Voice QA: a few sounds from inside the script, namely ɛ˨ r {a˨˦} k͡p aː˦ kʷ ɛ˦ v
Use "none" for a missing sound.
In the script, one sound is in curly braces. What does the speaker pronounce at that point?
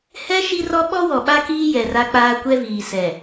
a˦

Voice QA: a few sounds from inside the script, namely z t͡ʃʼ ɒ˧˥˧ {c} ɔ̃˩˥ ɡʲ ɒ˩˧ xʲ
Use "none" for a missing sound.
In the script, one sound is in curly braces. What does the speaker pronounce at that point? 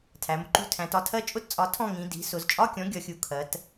kʲ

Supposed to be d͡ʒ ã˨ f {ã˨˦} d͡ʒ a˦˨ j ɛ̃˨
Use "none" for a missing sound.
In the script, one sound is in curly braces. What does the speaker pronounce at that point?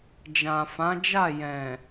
ã˨˦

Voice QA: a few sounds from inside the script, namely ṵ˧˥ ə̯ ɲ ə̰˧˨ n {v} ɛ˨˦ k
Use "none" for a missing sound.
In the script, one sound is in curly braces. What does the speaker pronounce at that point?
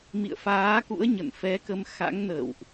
f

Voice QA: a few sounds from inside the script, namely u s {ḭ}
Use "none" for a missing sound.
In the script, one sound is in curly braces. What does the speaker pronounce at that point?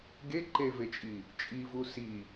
i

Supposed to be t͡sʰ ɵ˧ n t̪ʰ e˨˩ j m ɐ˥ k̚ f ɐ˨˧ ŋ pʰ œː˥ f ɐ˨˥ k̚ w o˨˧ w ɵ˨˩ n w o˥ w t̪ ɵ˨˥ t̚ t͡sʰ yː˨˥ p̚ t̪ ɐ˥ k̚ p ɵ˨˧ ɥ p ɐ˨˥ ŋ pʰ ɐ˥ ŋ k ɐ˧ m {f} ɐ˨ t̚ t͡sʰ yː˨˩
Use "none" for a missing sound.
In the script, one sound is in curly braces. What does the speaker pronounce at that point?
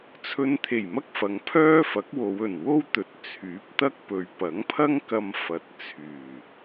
f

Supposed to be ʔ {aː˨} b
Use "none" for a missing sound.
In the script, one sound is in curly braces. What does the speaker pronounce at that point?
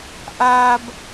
aː˨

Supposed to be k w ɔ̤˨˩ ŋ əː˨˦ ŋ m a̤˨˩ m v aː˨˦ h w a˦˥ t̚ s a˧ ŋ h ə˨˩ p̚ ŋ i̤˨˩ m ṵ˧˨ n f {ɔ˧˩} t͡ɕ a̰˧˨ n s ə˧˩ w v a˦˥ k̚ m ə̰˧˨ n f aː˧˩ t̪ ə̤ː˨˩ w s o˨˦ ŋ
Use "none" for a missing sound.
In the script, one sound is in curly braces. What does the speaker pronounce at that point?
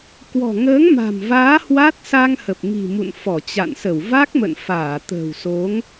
ɔ˧˩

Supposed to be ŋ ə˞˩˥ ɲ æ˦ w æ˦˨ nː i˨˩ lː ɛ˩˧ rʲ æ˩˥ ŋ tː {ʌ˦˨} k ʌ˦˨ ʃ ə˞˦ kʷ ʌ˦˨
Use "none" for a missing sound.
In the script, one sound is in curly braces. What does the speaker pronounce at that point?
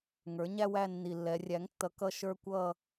ʌ˩˥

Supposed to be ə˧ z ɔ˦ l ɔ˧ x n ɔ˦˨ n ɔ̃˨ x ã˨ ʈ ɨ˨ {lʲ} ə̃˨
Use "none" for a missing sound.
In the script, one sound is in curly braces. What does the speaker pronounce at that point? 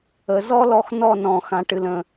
l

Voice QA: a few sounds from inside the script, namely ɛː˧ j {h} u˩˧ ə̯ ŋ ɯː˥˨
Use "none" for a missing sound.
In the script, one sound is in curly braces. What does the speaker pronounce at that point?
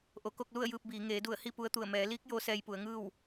p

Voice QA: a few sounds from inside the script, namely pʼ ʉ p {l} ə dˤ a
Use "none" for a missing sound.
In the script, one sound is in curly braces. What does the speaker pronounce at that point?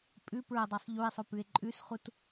ɹ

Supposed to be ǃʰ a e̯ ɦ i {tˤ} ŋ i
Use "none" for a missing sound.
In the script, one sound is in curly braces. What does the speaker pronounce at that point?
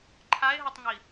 tˤ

